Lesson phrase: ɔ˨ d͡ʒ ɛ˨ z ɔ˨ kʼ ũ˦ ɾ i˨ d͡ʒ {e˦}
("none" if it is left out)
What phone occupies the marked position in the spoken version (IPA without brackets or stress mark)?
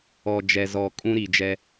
ɛ˦